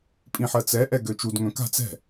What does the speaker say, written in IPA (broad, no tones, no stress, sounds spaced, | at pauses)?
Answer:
pʼ ĩ ħ ɜ t͡s ɛ ʔ ɛ ɡ ø t͡ʃ u d ŋ œ̃ k a̤ t͡s ɛ̤